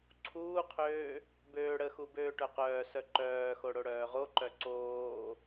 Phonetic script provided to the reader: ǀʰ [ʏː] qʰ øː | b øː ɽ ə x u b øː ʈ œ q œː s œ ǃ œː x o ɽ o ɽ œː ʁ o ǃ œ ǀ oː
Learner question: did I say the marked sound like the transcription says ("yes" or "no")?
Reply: no